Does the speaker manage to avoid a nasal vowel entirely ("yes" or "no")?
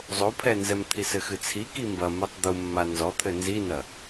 yes